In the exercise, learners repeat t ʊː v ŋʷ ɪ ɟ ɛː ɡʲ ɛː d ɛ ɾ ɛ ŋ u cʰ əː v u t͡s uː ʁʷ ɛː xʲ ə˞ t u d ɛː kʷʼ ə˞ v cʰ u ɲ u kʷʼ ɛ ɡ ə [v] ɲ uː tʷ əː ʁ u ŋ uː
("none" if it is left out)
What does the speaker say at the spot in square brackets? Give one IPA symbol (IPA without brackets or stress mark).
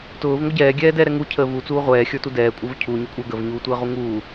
v